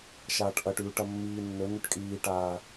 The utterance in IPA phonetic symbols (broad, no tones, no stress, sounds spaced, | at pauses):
ʃ aː ʈ ʔ ɐ ʈ ʉː ʈ ɐ mː iː nː ɵ n ʉ ʈ kʼ iː ʈ aː